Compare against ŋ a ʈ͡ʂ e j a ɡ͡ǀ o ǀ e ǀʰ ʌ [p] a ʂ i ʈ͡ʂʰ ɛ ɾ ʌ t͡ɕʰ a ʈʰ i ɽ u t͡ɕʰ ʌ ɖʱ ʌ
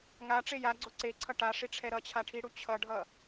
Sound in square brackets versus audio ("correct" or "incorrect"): incorrect